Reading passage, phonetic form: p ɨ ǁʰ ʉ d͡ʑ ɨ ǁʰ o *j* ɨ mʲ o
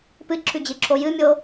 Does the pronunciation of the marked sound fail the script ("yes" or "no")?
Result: no